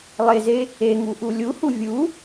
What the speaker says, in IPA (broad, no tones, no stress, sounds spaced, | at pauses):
lˠ e z e | e ŋ u ʔ u lʲ u h u vʲ u